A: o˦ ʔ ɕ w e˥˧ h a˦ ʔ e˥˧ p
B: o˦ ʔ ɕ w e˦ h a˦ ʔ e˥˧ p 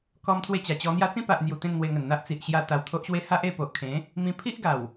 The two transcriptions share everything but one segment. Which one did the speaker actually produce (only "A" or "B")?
B